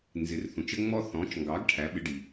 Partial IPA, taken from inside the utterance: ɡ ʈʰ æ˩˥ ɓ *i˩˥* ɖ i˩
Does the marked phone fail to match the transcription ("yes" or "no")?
yes